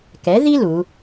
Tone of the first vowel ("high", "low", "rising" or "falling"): rising